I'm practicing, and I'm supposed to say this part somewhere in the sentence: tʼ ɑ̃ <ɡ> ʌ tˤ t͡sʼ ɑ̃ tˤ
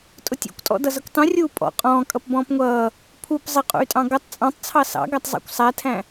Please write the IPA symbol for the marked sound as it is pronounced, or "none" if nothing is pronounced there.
ɡ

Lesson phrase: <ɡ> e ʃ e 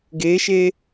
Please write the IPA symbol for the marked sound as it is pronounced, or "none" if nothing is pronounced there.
ɡ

